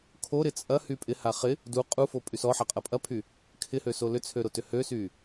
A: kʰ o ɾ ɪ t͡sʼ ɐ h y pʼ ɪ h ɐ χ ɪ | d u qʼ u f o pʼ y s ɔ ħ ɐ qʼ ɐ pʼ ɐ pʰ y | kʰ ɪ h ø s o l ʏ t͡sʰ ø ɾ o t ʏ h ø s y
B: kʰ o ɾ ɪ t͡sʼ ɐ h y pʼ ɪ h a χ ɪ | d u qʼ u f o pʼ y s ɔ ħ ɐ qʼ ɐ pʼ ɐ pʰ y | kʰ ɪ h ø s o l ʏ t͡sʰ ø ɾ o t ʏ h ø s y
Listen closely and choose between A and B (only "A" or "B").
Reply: B